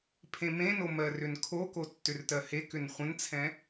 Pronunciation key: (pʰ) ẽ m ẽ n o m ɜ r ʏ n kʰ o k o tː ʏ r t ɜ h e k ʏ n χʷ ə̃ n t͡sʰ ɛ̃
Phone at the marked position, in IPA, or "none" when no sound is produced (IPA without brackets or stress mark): pʰ